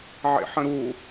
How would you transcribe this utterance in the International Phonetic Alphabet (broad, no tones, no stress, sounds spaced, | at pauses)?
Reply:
ʕ ḛ ħ ə̃ ɾ u